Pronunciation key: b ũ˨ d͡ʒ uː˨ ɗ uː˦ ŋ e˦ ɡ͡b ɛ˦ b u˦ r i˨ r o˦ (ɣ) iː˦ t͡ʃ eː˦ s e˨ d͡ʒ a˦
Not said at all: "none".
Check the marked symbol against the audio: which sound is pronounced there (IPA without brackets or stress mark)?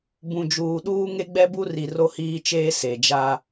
h